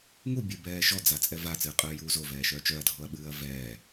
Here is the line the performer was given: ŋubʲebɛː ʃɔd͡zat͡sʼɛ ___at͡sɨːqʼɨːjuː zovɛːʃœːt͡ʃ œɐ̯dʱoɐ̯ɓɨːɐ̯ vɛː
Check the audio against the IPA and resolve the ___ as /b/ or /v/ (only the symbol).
v